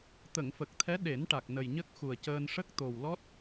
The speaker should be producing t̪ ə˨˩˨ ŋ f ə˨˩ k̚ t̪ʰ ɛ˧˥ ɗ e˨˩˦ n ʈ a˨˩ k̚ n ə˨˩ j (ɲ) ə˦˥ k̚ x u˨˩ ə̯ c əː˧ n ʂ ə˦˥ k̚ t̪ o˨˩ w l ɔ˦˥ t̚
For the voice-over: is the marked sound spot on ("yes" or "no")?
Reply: yes